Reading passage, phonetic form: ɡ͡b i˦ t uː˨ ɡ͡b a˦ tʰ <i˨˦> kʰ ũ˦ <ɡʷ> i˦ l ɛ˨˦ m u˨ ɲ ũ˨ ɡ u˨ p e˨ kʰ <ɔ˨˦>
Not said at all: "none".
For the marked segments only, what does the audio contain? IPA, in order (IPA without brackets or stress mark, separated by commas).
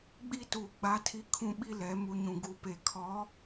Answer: i˦, ɓ, ɔ˨˦